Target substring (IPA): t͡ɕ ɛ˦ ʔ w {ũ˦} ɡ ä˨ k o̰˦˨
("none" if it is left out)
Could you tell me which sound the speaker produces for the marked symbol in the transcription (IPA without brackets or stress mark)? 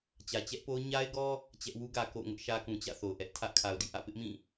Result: u˦